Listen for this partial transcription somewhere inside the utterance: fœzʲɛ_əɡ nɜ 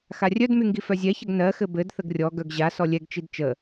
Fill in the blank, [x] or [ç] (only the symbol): ç